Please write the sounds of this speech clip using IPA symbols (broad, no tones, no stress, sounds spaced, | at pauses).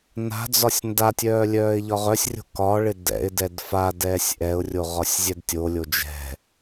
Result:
n a̤ d͡z ɒ sʲ n d a tʲ œː lʲ œː ɪ̯ ʎ ɒ ʁ œ sʲ rʲ o̤ k ɒ ɭ ɪ d ɛ̰ ɪ̯ d ɛ d f a d ɛː sʲ ʔ ɛ ʊ̯ rʲ o ʁ ɒ sʲ zʲ ɛ d tʲ o lʲ o d͡ʒ ɛ̤